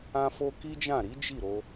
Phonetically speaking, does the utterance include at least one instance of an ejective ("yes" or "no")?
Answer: no